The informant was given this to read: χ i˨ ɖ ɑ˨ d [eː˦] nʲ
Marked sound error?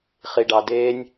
no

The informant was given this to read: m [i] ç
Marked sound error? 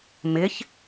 yes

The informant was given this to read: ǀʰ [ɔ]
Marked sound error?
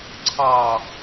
yes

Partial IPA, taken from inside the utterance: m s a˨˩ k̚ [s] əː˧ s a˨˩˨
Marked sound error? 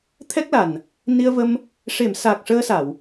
yes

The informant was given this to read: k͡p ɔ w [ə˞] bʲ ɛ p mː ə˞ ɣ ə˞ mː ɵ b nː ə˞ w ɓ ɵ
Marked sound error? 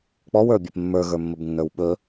no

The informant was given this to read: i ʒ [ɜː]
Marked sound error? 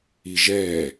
yes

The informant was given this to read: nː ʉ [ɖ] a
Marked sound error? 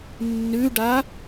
no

